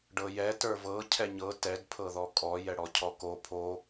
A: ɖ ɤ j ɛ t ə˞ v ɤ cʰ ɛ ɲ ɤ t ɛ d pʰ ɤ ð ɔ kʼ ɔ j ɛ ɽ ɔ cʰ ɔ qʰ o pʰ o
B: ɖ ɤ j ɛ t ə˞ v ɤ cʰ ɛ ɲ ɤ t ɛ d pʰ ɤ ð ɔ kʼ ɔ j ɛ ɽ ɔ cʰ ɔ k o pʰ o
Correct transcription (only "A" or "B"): B